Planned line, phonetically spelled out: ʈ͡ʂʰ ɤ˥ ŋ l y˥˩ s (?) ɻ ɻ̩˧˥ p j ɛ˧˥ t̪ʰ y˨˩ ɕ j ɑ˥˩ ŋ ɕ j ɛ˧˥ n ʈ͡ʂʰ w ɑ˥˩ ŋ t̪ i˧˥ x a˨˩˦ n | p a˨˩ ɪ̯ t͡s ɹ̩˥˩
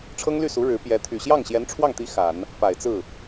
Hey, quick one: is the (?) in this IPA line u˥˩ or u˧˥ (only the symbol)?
u˧˥